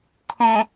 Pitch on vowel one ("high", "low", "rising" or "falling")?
low